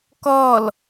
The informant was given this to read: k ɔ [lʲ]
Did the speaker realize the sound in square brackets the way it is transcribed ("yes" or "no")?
no